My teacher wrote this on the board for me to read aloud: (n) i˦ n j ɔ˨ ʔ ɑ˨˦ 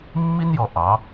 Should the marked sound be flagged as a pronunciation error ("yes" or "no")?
yes